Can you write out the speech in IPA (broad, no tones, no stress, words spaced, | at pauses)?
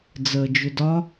d͡zəːd͡ʒʏdɒ